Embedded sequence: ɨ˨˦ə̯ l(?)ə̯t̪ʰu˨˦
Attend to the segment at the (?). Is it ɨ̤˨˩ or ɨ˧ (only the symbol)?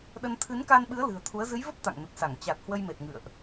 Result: ɨ̤˨˩